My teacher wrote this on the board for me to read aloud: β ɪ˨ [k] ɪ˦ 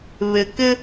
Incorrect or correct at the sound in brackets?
correct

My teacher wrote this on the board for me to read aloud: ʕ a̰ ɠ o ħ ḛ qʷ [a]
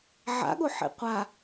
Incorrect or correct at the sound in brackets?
correct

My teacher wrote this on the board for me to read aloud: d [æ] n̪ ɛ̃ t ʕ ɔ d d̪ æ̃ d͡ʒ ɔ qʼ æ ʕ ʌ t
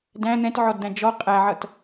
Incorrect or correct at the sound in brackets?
incorrect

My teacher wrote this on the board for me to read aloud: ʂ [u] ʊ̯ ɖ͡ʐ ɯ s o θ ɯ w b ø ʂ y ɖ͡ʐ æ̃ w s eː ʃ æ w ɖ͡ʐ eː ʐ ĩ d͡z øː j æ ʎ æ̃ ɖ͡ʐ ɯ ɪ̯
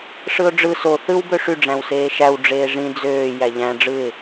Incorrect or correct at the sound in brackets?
incorrect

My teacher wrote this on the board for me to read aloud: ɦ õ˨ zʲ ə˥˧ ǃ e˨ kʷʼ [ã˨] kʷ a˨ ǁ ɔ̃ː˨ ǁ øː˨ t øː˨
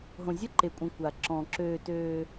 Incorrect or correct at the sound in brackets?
incorrect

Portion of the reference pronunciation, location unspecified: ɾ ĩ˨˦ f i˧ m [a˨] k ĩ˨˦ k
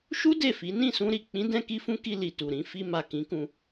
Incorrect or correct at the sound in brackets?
correct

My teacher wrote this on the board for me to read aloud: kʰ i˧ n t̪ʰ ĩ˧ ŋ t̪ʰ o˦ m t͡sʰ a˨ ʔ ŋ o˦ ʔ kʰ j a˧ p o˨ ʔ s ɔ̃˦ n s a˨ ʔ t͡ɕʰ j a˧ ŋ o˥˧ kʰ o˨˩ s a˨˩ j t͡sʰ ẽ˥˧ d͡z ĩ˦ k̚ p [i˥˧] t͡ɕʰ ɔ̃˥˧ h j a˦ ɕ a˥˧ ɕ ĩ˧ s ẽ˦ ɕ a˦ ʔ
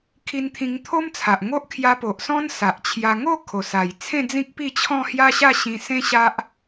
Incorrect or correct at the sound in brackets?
correct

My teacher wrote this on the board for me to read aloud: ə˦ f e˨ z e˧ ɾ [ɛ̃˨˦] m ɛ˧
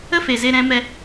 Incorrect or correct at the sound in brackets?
correct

